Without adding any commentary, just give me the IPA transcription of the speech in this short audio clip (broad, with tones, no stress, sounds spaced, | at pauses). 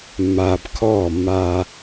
mː aː˨ b kʰ ɔː˦˨ mː aː˦